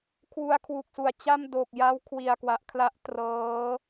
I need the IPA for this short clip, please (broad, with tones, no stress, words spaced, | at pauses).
kʰwu˧a̯kʰwu˨˩k̚su˨˩a̯t͡ɕa˥˩m do˨˩k̚ja˦˥w kʰwi˨˩a̯kwa˨˩ʔkʰla˦˥ʔ trɤː˦˥